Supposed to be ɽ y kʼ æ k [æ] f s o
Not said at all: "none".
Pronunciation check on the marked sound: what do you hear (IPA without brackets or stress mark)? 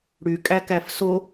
æ